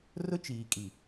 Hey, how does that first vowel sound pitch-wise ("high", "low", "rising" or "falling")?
high